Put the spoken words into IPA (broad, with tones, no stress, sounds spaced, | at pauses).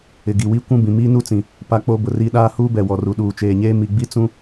ɪ˨ ɡ i˨ w i˦ kʷ ũ˦ b ĩ˨ m iː˦ n u˦ t͡s ĩ˨ | p a˦ k͡p o˦ b ʊ˨ r i˦ ɗ aː˦ h uː˦ b ɛ˨ w ɔ˨ r u˨ ɗ uː˨ t͡ʃ eː˨ ɲ eː˦ m i˨ ɡ͡b i˦ t͡s ũ˦